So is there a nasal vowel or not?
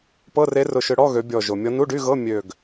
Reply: no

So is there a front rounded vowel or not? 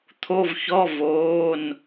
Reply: no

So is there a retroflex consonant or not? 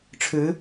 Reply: yes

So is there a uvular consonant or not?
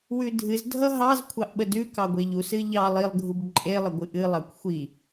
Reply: no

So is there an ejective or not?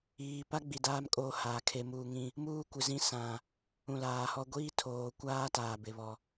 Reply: yes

